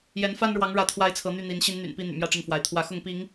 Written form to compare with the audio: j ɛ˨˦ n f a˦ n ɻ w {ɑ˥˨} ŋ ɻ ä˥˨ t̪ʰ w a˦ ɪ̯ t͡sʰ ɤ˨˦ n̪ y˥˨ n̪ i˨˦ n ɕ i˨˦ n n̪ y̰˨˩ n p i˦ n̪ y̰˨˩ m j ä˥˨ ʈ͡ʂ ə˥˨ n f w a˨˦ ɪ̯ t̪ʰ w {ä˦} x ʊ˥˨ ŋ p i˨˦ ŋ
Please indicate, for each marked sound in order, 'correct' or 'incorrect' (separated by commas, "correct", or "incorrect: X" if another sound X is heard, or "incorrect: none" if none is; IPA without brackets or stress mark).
incorrect: ɑ˨˦, incorrect: ä˨˦